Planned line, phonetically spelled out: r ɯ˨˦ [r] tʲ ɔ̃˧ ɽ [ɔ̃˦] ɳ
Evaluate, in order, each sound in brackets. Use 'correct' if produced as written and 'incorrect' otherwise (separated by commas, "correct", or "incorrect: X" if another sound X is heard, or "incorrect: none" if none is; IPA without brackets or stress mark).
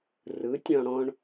incorrect: none, correct